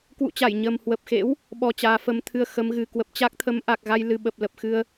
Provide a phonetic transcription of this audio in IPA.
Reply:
k w ṵ˧˨ t͡ɕ a˧˩ j ɲ ə˨˩ m h w ə˨˩ p̚ x ḛ˧˥ w | ɓ ɔ˧ t͡ɕ aː˨˦ f ə˨˦ m t̪ʰ ɨ˧ ə̯ x ə˨˦ m ɣ ɨ˨˩ k w ə˨˩ p̚ t͡ɕ a˦˥ k̚ t̪ʰ ə˨˦ m ʔ a˨˩ k̚ ɣ a˧ j l ɨ˨˩ ɓ ə˨˩ p̚ l ə˨˩ p̚ x ɨ˧ ə̯

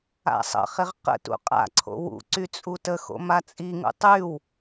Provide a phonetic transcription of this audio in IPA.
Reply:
a̰ sˤ ə̰ χ ɪ ʁ q ə̰ t ṵ qʼ a̰ ǀʰ o̰ w ṵ ǀ y t͡sʼ u t ə x o̰ m a t͡sʼ i ŋ ṵ tˤ y w

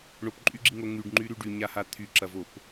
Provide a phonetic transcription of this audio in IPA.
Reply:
ɳ o p ǃʼ y ɡ͡ǁ i ŋ o ŋ y ɖ ŋ͡ǃ y ɾ y ɖ y ɲ a h a t̪ʰ y ǁ ɐ v o p

